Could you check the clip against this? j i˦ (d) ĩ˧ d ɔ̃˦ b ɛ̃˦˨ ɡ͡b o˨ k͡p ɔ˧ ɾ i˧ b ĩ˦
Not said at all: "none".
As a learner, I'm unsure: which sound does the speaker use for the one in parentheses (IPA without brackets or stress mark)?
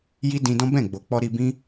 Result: d